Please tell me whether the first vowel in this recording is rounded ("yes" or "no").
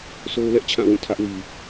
yes